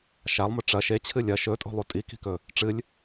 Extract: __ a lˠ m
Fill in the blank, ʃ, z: ʃ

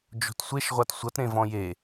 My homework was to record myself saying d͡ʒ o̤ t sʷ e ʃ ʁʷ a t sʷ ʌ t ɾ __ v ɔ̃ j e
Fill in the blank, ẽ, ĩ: ẽ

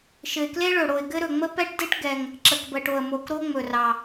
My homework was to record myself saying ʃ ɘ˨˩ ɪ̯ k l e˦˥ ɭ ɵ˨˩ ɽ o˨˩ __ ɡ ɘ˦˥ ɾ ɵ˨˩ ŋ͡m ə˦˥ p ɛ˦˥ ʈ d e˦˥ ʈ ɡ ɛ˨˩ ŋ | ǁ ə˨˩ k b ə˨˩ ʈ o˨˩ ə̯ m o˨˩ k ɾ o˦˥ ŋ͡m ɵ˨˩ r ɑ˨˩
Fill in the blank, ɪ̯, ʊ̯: ɪ̯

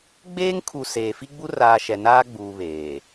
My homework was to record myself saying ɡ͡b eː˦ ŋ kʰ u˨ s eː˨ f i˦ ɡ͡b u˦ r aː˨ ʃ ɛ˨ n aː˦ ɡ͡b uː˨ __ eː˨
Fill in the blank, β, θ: β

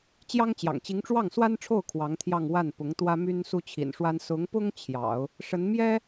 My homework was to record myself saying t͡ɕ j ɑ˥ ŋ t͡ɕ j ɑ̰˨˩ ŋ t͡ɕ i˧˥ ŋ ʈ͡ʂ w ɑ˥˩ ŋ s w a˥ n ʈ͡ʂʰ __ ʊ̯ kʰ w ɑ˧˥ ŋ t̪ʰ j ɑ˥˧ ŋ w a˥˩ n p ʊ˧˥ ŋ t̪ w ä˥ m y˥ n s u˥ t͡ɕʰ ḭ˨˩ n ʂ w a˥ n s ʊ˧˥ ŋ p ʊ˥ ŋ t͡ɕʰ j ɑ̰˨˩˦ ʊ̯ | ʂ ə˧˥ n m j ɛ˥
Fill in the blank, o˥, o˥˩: o˥˩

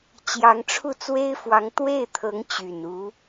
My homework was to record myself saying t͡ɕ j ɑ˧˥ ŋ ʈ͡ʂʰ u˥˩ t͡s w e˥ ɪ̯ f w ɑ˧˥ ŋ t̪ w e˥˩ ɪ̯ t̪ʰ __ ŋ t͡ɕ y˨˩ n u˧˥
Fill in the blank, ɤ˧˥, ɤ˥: ɤ˧˥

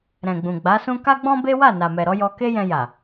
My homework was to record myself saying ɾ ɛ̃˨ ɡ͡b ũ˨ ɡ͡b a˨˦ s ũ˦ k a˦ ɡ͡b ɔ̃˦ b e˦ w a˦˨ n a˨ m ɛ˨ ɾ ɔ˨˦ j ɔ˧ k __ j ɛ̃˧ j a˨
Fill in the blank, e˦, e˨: e˦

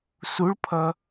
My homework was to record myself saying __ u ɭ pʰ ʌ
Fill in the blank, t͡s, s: s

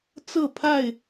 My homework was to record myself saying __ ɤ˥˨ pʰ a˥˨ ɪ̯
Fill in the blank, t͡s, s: t͡s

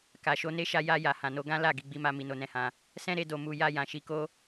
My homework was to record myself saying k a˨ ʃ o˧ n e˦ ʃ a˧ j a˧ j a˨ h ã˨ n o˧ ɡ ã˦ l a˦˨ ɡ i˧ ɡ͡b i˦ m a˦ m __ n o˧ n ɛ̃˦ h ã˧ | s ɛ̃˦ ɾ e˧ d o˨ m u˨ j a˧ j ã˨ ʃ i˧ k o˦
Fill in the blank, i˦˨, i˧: i˧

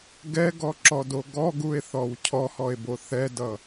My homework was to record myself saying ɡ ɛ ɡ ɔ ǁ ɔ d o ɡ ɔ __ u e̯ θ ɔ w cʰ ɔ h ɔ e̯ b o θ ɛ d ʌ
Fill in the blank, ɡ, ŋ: ɡ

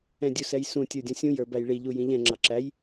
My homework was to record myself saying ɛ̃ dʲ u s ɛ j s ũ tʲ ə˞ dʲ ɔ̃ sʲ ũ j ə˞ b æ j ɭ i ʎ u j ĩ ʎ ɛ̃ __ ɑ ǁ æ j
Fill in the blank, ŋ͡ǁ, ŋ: ŋ͡ǁ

